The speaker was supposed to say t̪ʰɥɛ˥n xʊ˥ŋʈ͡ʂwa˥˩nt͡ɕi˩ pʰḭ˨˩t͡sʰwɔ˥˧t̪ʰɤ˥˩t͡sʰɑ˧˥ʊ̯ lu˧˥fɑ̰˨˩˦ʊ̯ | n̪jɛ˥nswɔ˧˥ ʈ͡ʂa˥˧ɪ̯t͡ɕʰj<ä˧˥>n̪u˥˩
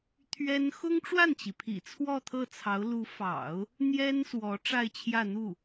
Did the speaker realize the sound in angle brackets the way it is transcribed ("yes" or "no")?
no